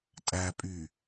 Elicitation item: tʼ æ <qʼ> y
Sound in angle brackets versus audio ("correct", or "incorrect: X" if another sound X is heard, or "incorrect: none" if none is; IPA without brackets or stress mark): incorrect: pʼ